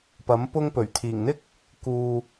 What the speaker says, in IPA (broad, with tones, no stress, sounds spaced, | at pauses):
p ɐ˨˥ m p ʊ˥ ŋ p ɵ˨˩ ɥ t̪ʰ iː˨˩ ŋ n̪ ɪ˥ k̚ | k uː˨